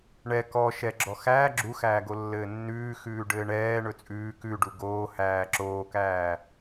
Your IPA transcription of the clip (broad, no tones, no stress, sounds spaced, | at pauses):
ɳ ɛ k ɔ ʃ ɛ ɡ͡ǁ ɔ x æː ɡ͡ǁ u x æː ɡ o lː ɘː nː ʉː x ʉː ɖ ɘː ɳ ɛː ɳ ɵ t͡sʼ ʉː k ʉ ɖ u ɡ oː h æː ǁ oː k æː